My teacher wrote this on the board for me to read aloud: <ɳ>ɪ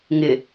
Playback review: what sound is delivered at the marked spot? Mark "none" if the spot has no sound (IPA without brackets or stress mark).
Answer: ŋ